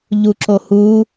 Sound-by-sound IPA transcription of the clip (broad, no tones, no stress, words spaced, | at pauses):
ʎuǁohu